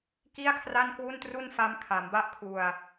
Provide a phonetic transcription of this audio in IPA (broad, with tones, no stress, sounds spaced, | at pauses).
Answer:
k i˥˩ a̯ kʰ r a˥˩ n k w u˥˩ n t r u˥˩ n f a˦˥ m kʰ a˩˦ m b a˥˩ ʔ kʰ u˧ a̯